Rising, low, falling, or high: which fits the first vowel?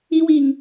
high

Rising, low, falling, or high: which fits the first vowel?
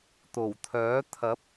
low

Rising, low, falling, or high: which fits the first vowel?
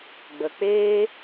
low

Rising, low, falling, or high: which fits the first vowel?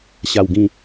low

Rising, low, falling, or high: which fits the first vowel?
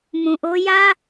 low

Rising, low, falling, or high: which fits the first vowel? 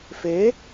rising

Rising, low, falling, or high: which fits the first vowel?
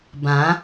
rising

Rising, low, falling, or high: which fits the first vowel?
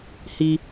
high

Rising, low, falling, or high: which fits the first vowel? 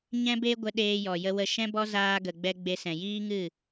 high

